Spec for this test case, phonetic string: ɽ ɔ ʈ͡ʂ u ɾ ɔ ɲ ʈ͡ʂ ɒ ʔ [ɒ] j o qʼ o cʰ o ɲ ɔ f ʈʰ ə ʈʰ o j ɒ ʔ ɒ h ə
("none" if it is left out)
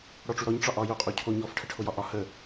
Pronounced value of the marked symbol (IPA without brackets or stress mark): ɒ